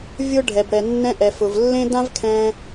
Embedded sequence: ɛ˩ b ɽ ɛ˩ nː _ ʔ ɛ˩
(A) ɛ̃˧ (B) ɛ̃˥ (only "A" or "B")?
A